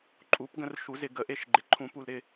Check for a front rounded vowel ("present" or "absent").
absent